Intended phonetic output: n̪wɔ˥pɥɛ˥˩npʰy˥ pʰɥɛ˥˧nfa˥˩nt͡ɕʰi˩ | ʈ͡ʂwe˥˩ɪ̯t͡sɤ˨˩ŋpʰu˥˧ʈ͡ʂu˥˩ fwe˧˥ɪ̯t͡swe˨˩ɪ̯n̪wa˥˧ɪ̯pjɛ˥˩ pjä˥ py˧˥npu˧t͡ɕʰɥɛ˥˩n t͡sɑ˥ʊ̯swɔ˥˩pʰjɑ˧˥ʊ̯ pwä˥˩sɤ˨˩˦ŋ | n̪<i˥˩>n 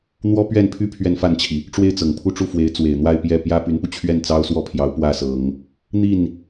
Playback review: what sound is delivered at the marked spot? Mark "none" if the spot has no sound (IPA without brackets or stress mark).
i˥˩